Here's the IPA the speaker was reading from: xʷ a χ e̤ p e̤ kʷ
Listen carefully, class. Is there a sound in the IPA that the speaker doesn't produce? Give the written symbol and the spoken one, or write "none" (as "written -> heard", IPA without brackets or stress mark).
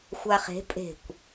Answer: p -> pʼ